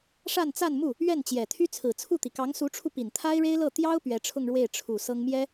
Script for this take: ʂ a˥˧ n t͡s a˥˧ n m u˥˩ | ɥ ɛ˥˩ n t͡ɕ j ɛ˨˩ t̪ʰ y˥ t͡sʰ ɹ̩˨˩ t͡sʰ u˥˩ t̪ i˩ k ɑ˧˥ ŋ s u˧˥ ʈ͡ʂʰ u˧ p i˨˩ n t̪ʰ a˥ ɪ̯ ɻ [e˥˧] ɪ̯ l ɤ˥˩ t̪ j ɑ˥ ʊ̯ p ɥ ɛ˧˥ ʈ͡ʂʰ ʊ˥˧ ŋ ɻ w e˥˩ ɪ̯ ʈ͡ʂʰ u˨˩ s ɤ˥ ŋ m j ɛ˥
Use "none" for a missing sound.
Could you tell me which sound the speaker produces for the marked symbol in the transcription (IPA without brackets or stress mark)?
e˥